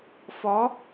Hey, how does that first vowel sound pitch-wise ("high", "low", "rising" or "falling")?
rising